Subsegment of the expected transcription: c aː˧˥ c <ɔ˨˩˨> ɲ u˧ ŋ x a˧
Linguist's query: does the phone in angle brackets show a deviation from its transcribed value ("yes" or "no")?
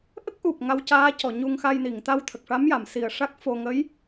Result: no